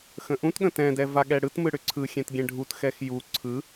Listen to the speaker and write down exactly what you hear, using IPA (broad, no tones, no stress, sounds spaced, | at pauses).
x ə̃ ʔ ũ t ɠ ə̃ t ɛ̃ d ɛ v a ɠ ɛ ɽ ɯ t m ɯ ɽ ʏ ǀʰ ɯ xʲ ɛ̃ t ɡʲ ɛ̃ ɖʱ u t x ɛ x j u ǀʰ ɯ